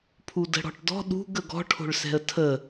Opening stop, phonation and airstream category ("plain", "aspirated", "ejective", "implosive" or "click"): aspirated